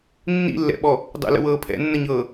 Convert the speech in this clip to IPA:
nː ḭ lː ɛ̰ ɓ ɔ | dˤ ə̰ l ə̰ w ɤː pʰ ɛ̰ nː ə ɲ ɤː

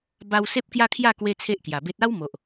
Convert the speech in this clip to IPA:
b a˧ w s e˦ p̚ k j a˦ kʰ j a˥˧ k w e˦ t͡sʰ e˦ ʔ k j a˨˩ b e˦ t̚ a˦ w m o˨ ʔ

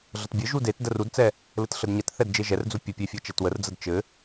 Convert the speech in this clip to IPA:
ɮ ə t bʲ ɘ ʒ u d e t d ə r u d t͡s ɛ | l ɘ t ɬ ə d ɲ ɛ t θ ɛ d d͡ʒ e ʒ ɛ r d͡z u pʲ ə pʲ e fʲ ɤ t͡ʃ ɛ t w ə r d͡z ə d t͡ʃ ɘ

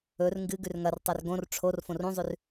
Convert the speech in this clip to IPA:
ɵ r ŋ ɡ ɨ ɡ ʉ r ŋ ɐ r tˤ u r ɡ õ r ʈ͡ʂʰ o r f õ r ũ zˤ ʉ r

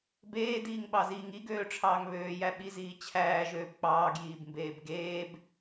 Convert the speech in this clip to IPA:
b eː d iː ŋ ɓ ɑ z iː ŋ i ɡ øː ʈ͡ʂʰ ɑː ŋ β øː j æ ɓ i z iː t͡ɕʰ æː ʒ øː b k͡p ɑː ɡ j iː b m b eː b ɡ eː b

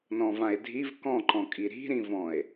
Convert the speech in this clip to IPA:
n ɔ̃ v ã e̯ dʱ i v k ɔ̃ ǃ ɔ̃ kʼ i ɾ i̤ ɾ ĩ v ɔ̃ e̯

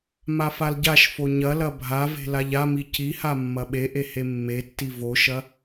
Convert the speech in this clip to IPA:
m a f a l ɟ a ʃ f o ɲ ɐ l ɐ bʱ a v e̤ l a ʎ a m i c i h a mː ɐ ɓ e ʔ e h e mː e tː i v o ʃ ɐ

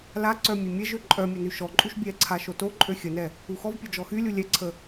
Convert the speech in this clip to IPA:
l a ǀ œ mʲ e mʲ ɛ ʒ ø ǃʼ œ mʲ o n y ʃ ɔ ǃʼ u ʃ bʲ ɛ ǀʰ a ʃ o t o ǃʼ ø xʲ ə n ɛ | u x ɔ v pʲ o d͡ʒ ɔ x y lʲ u lʲ ɛ ǀʰ ə

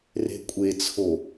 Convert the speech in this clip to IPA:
r e̤ kʷʼ e t͡sʰ o

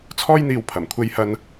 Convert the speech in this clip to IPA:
t͡sʰ ɔː˥ j n̪ iː˧ w pʰ ɐ˨˩ m kʷʰ e˧ j h ɐ˧ n

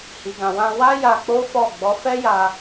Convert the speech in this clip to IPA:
h i˨ ɡ ã˨ w ã˧ w a˦ j a˧ k͡p o˦ f ɔ˦˨ ɡ͡b ɔ˨˦ f ɛ˦ j a˧

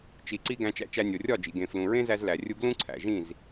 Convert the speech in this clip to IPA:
t͡ʃ i˨ ǀ i˧ ɡ æ̃˧ t͡ʃ æ̰˧ t͡ʃ æ˧ nʲ o˨ rʲ ɒ˦˨ d͡ʒ ḭ˨ ɡ ẽ˨ f l ũ˨ ɹ ẽ˦ z æ˧ z l æ˨ rʲ u˦ ɡ l ũ˦ ǀʰ æ̰˨ ʒ ĩ˦˨ z

